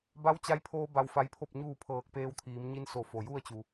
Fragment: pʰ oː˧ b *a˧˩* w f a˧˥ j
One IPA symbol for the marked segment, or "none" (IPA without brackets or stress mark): a˧